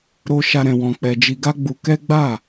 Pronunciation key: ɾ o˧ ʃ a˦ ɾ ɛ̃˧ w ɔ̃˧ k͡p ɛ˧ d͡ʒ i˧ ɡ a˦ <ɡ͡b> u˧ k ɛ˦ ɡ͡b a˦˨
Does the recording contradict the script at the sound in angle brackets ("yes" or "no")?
no